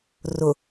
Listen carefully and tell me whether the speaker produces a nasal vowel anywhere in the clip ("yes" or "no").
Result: no